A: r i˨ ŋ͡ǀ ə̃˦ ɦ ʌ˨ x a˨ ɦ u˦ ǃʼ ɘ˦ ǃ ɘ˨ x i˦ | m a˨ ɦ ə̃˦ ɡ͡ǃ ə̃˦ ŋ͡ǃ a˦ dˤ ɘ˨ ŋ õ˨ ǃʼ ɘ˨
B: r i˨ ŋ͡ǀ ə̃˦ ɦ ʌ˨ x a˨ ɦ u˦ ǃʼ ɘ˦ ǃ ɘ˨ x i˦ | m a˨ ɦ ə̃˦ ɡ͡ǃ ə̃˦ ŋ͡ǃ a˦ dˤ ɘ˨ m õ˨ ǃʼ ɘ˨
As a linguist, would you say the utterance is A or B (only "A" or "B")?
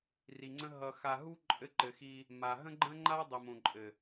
B